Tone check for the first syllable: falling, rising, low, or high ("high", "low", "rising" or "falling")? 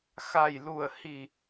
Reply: low